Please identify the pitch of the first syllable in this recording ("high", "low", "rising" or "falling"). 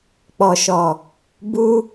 low